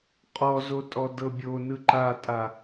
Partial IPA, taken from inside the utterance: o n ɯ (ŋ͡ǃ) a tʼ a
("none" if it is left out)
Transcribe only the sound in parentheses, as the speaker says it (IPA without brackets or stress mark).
ǃ